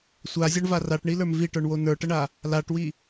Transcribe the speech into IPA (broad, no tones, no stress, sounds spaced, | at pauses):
sʷ a zʲ ɔ ɳ v a r a ʈ ɳ i l ə˞ m v i ʈ ə˞ ɳ w o n ə˞ ʈ ə ɳ a | l a ʈ w i